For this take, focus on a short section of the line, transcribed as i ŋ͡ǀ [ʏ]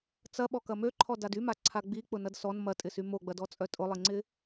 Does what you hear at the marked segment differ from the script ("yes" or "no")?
yes